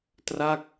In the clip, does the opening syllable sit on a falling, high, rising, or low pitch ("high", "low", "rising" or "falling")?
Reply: falling